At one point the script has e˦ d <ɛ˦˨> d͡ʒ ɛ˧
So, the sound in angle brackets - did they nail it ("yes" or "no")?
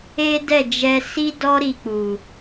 yes